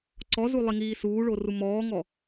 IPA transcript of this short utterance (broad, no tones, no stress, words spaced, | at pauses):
ǀɔzu lˠiŋiːsuːɭo rumɔːŋɔ